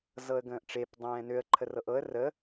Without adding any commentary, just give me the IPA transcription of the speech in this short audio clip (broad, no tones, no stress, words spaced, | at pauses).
zɤə̯ɡə̃ːʔʈ͡ʂep dˤɛ̃ːnøə̯ ǃʰərɤʔɤə̯ rə